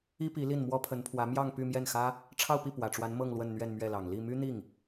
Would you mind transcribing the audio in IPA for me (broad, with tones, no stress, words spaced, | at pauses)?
i˥pi˧˥ li˥˩nmwɔ˥pʰə˧˥npʰwä˧˥ mjɑ˥˧ŋ py˥˧mjɛ˥˩nxä˥ | ʈ͡ʂʰɑ˥˧ʊ̯pi˥˩ pwä˨˩ʈ͡ʂwa˧˥n mɤ˥˧ŋlwə˥˧n n̪ɥɛ˥˧nmɥɛ˥˩lɑ˨˩ŋ li˥˩ my˥n̪i˥˩ŋ